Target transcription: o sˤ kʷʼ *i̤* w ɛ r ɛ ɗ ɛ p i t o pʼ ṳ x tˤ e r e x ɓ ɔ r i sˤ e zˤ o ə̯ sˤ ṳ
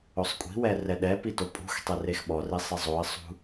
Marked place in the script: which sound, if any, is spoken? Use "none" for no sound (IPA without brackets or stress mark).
i̤